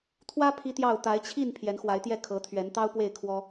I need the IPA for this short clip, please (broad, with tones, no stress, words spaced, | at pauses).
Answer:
t̪ʰwä˦ pʰi˦t̪jɑ˥˨ʊ̯ t̪a˨˦ɪ̯t͡ɕʰi˥˨n pʰjɛ˨˦nxwa˨˦ɪ̯t̪jɛ˦ kʰɤ˨˦t̪ʰɥɛ˨˦n t̪ɑ˦ʊ̯pwe˥˨ɪ̯kʰwɔ˦